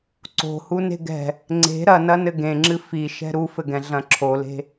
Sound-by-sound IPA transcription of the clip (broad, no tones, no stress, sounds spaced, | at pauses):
ǀ o̤ h u n e̤ ɡ ɛ̤ | ŋ͡ǀ e̤ ɾ ɐ n ɐ n ɘ ɡ ẽ ŋ͡ǁ ɨ f i ʃ ɛ̤ ɾ u f ɘ ɡ ɛ̃ ɮ ɐ̃ ǁʰ o l e̤